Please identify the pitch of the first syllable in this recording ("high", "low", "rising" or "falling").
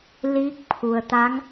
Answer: rising